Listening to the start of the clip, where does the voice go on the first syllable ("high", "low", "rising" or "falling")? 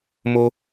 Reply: high